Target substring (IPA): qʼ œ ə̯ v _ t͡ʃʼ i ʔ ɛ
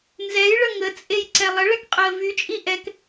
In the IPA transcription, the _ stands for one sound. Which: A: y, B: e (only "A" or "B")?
A